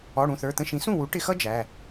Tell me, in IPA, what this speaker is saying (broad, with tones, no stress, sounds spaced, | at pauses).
ɔ˩˧˩ ɽ ũ˩˧˩ θ ə˞˩˧˩ t̪ ə̃˧ ʃ ĩ˩˥ s ũ˥˩ w u˩˥ ʈ ɪ˧ x ʌ˥ d͡ʒ æ˩˧˩